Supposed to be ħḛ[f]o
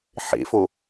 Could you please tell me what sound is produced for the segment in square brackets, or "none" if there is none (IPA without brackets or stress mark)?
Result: f